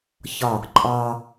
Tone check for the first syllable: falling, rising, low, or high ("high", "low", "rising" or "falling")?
falling